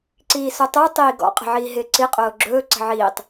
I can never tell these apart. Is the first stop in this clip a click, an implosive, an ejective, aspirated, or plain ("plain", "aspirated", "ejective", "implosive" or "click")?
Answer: click